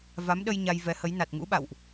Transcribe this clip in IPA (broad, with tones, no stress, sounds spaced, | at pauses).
v a˨˦ m ɗ ə˧ j ɲ a˧ j v ɛ˨˦ h ə˨˦ j n a˨˩ t̚ ŋ ṵ˧˥ ɓ a̰˧˨ w ʔ